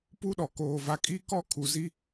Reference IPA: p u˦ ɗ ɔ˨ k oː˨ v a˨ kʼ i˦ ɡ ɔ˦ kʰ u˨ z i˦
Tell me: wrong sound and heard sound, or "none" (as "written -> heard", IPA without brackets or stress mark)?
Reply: ɡ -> k